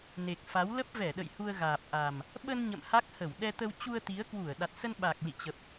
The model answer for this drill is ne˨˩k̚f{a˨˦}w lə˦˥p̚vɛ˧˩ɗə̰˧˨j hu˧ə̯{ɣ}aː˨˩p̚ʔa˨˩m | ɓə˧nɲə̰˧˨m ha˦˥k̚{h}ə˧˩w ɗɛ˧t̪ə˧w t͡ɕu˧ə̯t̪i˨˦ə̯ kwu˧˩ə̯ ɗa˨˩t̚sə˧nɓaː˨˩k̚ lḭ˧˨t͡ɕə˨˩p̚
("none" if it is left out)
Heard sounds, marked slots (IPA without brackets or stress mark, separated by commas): a˨˦, ɣ, h